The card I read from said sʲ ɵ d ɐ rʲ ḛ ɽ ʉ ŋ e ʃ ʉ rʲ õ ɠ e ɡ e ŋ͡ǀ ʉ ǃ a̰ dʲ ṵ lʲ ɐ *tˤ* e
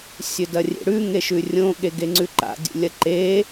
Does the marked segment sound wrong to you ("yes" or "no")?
yes